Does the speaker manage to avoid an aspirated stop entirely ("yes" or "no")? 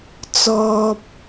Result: yes